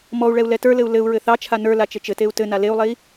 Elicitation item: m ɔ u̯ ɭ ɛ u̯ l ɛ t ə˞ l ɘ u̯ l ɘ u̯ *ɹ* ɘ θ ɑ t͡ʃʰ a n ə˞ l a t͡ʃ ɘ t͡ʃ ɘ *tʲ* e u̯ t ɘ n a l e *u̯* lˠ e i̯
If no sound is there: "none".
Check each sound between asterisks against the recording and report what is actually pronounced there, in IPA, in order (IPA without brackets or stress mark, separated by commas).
ɹ, t, u̯